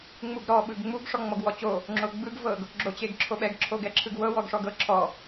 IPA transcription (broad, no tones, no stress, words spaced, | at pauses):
ŋ͡muɡɾɔ ɓɯɡŋ͡muɡ ʂɔŋ͡mɔɡwɔt͡ɕo | ŋ͡ǁoɡ͡bɯɡ vɤɡ | ɡ͡ǁot͡ɕeɡǁʰoɓɛɡ ǁʰoɡɛǁʰɯɡwɤ wɔɡʂɔɡɤ ǁʰɔ